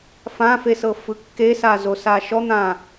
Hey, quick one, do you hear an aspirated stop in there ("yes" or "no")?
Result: no